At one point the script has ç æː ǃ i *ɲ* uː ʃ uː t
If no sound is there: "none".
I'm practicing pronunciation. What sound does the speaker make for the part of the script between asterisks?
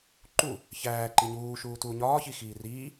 ɲ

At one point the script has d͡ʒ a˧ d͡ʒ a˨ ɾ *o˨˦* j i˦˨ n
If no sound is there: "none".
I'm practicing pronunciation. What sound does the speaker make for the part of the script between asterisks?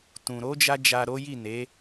o˨˦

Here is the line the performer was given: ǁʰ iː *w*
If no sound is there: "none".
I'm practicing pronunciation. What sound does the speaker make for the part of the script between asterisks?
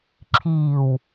w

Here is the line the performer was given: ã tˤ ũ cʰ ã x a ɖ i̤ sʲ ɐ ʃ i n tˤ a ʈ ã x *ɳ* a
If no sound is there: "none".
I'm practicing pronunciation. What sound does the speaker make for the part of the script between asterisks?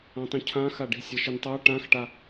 ʈ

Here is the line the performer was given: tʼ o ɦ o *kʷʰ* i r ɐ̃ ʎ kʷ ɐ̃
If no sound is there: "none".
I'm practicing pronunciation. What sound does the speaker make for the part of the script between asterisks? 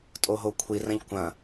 kʷʰ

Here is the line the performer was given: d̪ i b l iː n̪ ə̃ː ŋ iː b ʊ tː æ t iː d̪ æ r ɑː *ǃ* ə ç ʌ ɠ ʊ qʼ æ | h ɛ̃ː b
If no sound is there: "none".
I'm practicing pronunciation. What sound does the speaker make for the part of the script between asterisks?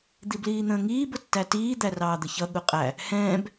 d̪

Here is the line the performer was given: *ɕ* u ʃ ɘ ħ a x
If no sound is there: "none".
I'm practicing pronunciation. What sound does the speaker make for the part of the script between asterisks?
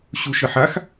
ɕ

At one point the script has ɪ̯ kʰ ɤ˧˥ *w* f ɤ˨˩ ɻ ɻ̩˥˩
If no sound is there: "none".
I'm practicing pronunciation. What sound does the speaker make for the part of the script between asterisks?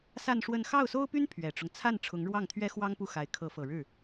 none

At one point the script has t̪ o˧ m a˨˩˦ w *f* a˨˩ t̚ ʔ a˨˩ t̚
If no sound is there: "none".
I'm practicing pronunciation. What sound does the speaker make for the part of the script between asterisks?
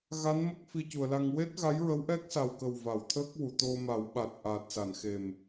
ɓ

